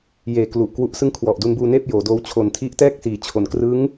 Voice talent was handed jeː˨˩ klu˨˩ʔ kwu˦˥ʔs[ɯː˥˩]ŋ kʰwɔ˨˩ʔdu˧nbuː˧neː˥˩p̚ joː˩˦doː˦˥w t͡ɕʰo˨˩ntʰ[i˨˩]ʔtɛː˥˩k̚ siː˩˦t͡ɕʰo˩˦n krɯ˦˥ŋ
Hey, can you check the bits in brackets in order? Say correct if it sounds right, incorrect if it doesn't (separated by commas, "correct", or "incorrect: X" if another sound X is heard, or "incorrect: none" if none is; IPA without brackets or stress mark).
incorrect: ɯ˥˩, incorrect: i˦˥